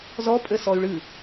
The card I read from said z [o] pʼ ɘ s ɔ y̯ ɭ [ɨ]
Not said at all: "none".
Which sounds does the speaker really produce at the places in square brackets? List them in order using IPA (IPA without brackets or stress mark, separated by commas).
ɔ, ɨ